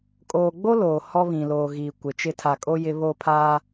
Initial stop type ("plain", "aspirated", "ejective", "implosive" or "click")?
ejective